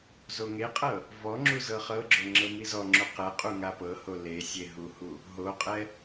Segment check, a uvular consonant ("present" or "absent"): present